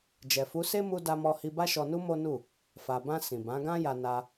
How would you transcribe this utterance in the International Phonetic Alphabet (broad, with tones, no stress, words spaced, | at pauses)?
d͡ʒɛ˨fu˨˦se˦ mu˦ da˧mɔ˧hi˧ ba˦ʃɔ˧nu˦ mo˦nu˦˨ | fa˨bã˧ sĩ˨bã˨˦ɡã˦ja˧ na˧